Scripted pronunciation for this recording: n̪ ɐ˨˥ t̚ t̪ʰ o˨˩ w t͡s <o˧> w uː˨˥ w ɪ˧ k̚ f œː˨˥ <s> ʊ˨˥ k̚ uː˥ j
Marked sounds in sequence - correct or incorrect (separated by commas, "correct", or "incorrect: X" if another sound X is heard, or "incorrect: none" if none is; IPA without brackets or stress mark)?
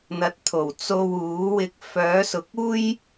correct, correct